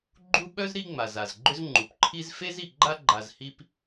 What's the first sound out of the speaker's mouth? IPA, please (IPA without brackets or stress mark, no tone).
ɡ͡ǃ